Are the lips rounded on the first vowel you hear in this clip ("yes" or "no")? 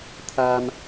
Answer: no